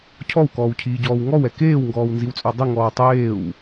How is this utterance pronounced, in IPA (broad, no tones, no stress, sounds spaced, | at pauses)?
cʰ ɔ w k ɔː w cʰ iː ɟ ɔː w ŋ ɔ w ɛ k eː w ŋ ɡ ɔː w n z i w t͡sʼ œ dˤ i ŋ ɔː w tˤ eː w